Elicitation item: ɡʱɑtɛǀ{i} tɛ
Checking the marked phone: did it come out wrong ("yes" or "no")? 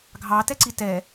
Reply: no